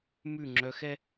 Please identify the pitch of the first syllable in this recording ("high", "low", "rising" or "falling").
falling